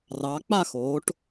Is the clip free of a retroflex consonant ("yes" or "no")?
no